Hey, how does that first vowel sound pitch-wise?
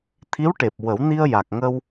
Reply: rising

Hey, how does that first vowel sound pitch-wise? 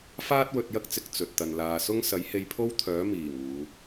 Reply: high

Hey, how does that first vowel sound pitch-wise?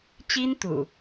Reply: high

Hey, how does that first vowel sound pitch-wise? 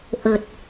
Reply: low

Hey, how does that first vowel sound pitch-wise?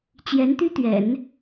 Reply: rising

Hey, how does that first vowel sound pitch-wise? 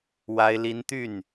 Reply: high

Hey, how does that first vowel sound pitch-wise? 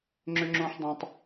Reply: high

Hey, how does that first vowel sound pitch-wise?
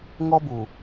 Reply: high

